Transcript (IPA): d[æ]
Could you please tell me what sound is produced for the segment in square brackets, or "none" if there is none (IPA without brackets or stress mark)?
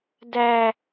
æ